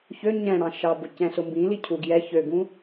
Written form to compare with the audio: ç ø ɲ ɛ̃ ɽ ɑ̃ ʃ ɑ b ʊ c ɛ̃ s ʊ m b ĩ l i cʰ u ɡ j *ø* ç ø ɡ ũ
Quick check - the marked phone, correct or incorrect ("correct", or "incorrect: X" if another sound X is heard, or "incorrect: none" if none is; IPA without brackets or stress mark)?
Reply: incorrect: ɛ